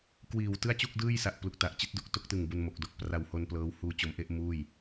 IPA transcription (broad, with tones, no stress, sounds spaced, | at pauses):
k w iː˨˩ w t ɯ˥˩ a̯ t͡ɕ u˥˩ k̚ d ɯː˥˩ j s a˨˩ ʔ p l u˨˩ k̚ t a˨˩ ʔ t͡ɕ i˦˥ t̚ d u˦˥ k̚ t o˦˥ k̚ t ɯ˨˩ ŋ b u˧ n m o˨˩ k̚ d o˨˩ k̚ p r a˨˩ w h o˧ n p l ɤː˦˥ w h uː˧ t͡ɕ o˩˦ m ʔ e˥˩ ʔ m uː˥˩ j